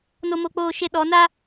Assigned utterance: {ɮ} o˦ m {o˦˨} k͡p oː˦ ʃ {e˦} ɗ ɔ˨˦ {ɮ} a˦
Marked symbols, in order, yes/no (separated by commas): no, no, yes, no